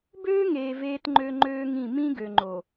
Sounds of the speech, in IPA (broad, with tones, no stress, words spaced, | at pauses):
bøː˦ŋeː˨ veː˦tŋ͡ǃø˦ŋ͡ǃøː˦ŋĩ˦˨ mĩ˦ɡø˨ŋ͡ǃo˨